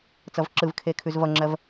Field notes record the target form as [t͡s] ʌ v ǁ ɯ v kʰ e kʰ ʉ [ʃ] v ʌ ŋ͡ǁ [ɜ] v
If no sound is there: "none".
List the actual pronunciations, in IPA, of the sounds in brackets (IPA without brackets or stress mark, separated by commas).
t͡s, z, ɜ